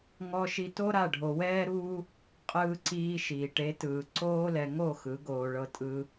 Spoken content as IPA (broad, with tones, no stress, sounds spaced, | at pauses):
ŋ ɔ˧ ʃ i˧ t o˦ ɾ a˦˨ ɖʱ o˧ w ɛː˦ ɾ uː˦ | qʼ ɯː˧ ǀ iː˧ ʃ iː˨ ʈ e˨˦ t ɯː˨ ǀ oː˦ l ɛ˧ ŋ o˦˨ x ɯ˨˦ ɡ oː˧ ɭ ɤ˧ tʼ ɯ˧